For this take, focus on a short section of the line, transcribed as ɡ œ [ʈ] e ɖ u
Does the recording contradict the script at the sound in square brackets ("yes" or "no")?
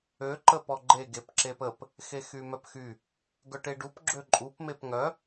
no